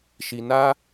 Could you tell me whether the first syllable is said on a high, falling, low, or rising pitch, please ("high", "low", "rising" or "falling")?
low